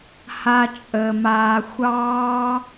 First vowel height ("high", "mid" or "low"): low